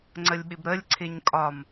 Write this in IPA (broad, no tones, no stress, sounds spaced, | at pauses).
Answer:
ŋ͡ǀ ə lʲ ɓ ɪ b ɾ ə lʲ ǀʰ ɪ ɲ kʼ ɒ m